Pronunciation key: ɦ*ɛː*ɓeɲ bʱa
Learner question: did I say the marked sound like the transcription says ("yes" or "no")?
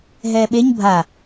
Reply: yes